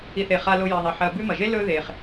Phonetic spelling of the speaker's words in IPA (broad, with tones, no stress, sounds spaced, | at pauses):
i˨ θ e˨ χ a˨ l o˨ j i˩ ðˤ e˩ ħ ɐ˨ b ʉ˦ m ɐ˩ ʒ e˥ l ɵ˦ ð e˩ χ